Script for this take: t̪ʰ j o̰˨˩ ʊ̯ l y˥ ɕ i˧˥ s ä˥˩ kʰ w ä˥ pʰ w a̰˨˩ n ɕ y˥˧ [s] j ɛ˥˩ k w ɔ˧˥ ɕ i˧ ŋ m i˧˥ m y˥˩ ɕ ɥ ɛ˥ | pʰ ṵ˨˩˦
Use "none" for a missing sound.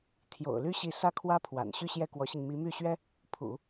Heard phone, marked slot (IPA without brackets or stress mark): ɕ